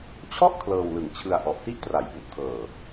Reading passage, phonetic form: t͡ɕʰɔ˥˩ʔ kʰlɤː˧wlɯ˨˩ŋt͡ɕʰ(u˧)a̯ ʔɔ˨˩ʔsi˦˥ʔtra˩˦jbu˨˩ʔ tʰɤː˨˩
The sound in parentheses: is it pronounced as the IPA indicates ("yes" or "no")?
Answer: no